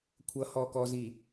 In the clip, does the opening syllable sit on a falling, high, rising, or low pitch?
rising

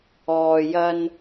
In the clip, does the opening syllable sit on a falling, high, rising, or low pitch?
low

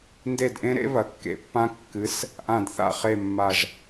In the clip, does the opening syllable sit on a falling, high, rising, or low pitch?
falling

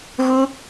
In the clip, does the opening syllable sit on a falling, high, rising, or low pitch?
high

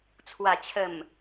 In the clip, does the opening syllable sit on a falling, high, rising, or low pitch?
low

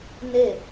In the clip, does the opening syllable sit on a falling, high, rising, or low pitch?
falling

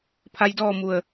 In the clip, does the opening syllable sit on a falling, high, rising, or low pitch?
rising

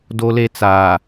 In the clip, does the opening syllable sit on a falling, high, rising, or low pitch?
high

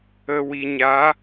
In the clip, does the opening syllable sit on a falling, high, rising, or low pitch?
low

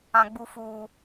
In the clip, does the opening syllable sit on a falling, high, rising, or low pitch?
high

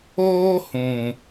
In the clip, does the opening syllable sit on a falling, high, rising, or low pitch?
high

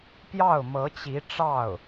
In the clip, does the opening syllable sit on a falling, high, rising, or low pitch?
falling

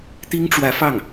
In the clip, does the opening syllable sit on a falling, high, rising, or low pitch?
high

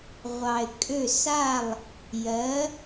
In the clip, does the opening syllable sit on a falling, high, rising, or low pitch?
low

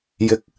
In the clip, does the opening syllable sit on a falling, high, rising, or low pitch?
low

